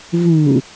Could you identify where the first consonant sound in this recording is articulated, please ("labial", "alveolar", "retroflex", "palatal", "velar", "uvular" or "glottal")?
labial